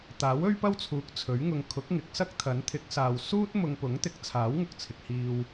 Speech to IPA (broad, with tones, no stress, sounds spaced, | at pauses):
t̪ aː˨˥ w ɵ˥ ɥ p ɐ˥ w t͡sʰ uː˨˥ k̚ t͡sʰ ɵ˨˥ ɥ ŋ ʊ˧ ŋ kʰ ʊ˨˥ k̚ ŋ ɪ˨˥ k̚ s ɐ˥ k̚ t̪ʰ ɐ˨˥ n t̪ʰ ɪ˨˥ k̚ s aː˨ w s uː˥ t̚ m ʊ˧ ŋ p ʊ˨˥ ŋ t̪ ɪ˨˥ k̚ t͡sʰ aː˨˥ w ŋ ʊ˨ k̚ t͡sʰ ɪ˨ k̚ h iː˧ w